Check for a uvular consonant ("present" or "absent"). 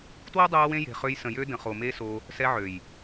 present